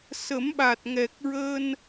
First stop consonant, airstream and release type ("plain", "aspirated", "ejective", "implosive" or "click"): implosive